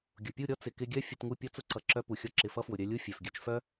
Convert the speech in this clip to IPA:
ɡʲ ʊ˨ pʲ u˦˨ ɾʲ ɔ˦ t͡s ɪ˨ k ɪ˧ ɡʲ œ˦ fʲ ʊ˧ t ŋ u˦˨ pʲ ɔ˧ t͡s ʊ˧ ǀ ʌ˨ ǁ œ˧ p u˨ xʲ ɔ˧ ǁ ɪ˨ f ʌ˧ f w ʊ˨ ɾʲ œ˧ lʲ u˦ fʲ œ˨ f ɡʲ œ˧ t͡ʃ f œ˦

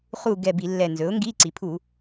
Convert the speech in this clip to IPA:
χ u˦˨ ɡ ɛ˦˨ b i˧˩˧ lː ɛ˨˩ n z ɵ˩˥ ʊ̯ ŋ ɡ i˧˥˧ ǀ i˩˧ pʰ u˧˩˧

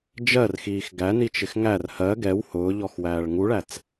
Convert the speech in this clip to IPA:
d͡ʒ ɜ r x iː x ɡ æ n i t͡ʃ ɪ x ŋ æ r h ɜ ɡ ɛ w h ʊː ʎ ɔ x w æː ɭ ŋ u ɭ æ t͡s

